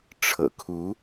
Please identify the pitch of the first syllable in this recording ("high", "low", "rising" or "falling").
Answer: low